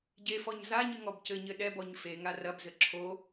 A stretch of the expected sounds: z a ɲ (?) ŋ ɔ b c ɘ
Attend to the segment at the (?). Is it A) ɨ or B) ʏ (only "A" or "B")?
A